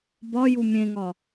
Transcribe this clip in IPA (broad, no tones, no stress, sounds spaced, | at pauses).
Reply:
b ɒ j u mʲ ẽ ŋ ɒ